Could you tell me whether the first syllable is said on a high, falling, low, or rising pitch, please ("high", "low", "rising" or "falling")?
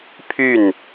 falling